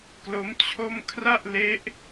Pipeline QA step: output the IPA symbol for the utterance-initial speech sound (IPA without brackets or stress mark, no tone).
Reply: k